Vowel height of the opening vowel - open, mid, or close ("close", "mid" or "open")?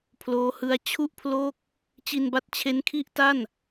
mid